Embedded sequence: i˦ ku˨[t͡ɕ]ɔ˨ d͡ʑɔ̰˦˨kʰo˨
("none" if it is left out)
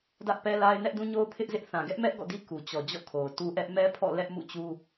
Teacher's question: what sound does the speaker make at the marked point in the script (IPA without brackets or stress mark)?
t͡ɕ